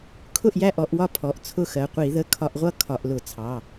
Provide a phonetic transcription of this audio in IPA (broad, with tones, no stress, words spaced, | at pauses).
kʰʊ˥˨ʔjæ˥˨ʔɔ˧˩˧ʔwɒ˥˨ pʰɔ˩˧˩ʔt͡sʰʊ˥˨xɜ˩˧˩ qʷi˧˩˧ðə˩˧˩ kʰɒ˧˩˧ʔʁʷʌ˥˨ kʰɒ˧˩˧ʔlʊ˧˩˧t͡sʰɑ˩˧˩